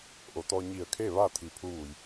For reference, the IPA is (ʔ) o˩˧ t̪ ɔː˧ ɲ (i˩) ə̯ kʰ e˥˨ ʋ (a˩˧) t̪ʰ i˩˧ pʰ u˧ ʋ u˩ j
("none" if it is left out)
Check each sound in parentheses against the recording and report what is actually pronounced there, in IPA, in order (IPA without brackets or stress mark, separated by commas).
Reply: ʔ, i˧˩, a˥˨